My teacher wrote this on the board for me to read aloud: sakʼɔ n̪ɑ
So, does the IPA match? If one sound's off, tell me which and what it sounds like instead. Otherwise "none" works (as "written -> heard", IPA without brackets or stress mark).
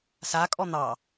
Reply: none